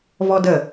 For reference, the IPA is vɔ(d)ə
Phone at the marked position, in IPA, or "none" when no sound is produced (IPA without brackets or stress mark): d